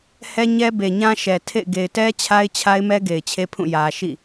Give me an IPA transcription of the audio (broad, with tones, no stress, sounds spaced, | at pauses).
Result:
h ɛ˦ ɲ ɛ˦ b e˨ ɲ ã˦ ʃ ɛ˨ tʰ ḛ˦˨ ɪ̯ ɡ e˨ ɪ̯ t ɛ˦ t͡ɕʰ a˦ ɪ̯ t͡ɕʰ a˦ ɪ̯ m ɛ˦ ɡ e˨ ɪ̯ t͡ɕʰ e˦ pʰ ũ˦˨ j ä˨ ʃ ḭ˦˨